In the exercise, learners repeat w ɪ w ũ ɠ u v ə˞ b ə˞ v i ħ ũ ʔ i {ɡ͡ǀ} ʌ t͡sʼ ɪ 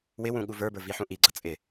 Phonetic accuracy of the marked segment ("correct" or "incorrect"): correct